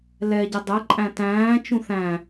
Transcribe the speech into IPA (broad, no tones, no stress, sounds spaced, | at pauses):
l ɛ ɟ ə dˤ ɛ ǃʼ æ̃ t æ̃ː t͡ʃ ũ θ æ̃